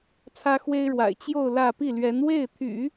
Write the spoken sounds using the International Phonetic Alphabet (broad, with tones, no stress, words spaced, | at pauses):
t͡sʰä˥xwe˥ɪ̯ɻwa̰˨˩ɪ̯ t͡ɕjo˥˧ʊ̯ lä˥˧ pi˥˩lɥɛ˧˥n we˥˩ɪ̯t̪ʰy̰˨˩˦